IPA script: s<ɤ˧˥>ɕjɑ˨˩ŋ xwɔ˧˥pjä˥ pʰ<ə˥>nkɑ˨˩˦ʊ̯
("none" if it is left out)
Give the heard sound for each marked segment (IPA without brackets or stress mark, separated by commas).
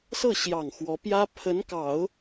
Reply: ɤ˥˩, ə˧˥